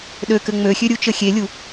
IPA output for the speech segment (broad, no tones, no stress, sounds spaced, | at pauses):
ɗ ø k ɘ ŋ͡m ø xʲ ø ɾʲ u t͡ʃ ɘ xʲ e lʲ u